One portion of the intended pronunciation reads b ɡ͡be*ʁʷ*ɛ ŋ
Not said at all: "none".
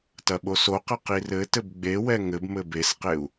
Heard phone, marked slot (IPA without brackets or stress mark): w